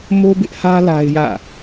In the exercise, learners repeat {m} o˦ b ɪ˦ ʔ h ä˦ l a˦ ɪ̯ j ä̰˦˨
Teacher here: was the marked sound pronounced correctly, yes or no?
yes